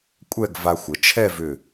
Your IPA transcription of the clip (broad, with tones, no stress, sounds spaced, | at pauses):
kʷʼ ɛ˥˧ ɡ v a˧ xʷ ə˩˧ t͡ʃʰ ɛ˥˧ v ʏ˧˩